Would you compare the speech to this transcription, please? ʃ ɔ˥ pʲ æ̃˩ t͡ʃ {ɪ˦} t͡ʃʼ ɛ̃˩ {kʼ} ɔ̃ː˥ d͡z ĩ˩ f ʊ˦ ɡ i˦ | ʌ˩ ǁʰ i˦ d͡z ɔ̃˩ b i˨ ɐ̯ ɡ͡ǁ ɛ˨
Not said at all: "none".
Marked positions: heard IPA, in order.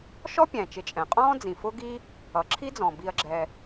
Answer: ɪ˨, qʼ

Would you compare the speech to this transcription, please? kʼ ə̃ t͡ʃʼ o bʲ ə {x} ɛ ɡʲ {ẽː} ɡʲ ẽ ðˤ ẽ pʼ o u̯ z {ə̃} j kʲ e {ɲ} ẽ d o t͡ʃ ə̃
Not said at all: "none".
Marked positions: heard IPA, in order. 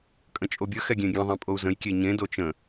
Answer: x, ẽ, ə̃, ɲ

